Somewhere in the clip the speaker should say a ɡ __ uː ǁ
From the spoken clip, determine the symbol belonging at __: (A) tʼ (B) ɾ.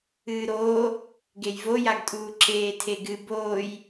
A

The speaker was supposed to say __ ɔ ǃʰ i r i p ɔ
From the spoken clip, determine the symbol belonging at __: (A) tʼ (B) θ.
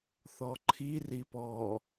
B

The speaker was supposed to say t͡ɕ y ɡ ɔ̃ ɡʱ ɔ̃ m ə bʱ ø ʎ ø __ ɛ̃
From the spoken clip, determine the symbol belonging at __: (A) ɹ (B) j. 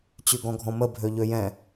B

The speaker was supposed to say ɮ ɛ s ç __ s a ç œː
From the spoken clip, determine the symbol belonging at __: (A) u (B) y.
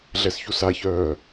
A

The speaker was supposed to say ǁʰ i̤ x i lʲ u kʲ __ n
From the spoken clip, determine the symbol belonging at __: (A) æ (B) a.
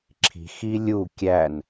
A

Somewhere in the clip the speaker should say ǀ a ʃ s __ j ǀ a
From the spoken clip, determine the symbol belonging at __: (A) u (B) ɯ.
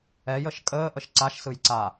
B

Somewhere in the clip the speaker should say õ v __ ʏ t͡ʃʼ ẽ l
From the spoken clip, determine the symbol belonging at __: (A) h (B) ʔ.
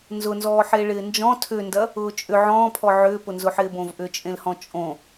B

